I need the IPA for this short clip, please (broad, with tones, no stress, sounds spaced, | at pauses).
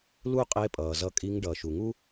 l u˥ qʼ e˧˥ pʼ ʌː˩ z ʌ˧ kʼ i˧˥ ŋ ɖ ʌː˩ ʃ u˩ ŋ u˥